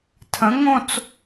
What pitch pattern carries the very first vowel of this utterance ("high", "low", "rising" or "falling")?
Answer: rising